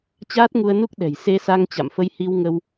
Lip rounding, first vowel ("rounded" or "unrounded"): unrounded